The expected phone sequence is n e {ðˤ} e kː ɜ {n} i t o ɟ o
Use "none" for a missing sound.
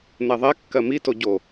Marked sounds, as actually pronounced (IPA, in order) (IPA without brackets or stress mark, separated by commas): ðˤ, m